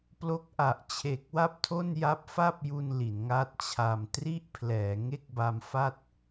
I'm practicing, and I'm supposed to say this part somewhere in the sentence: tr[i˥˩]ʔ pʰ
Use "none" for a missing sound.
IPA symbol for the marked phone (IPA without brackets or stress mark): i˥˩